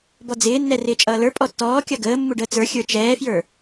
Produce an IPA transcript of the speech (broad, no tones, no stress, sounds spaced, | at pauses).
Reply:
b ɔ d͡z ɪː nː ɛ r ɪː t͡ʃʼ ʌː l ə˞ pʼ ɔ tː ɔː kʲ ʌ ɡ əː mː u ɖ əː t͡s ə˞ xʲ ə˞ t͡ʃ ɛː f j ə˞